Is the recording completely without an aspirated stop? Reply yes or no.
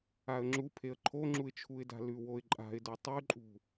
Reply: no